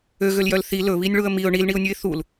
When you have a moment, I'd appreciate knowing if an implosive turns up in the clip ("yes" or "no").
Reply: no